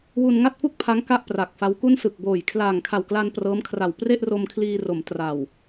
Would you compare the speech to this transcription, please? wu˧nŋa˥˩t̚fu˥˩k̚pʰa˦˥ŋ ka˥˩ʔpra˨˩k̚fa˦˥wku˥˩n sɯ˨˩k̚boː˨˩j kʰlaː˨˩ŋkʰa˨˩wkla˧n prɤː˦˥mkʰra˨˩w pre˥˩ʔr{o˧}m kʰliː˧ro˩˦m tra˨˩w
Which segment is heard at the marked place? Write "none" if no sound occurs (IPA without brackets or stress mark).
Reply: o˧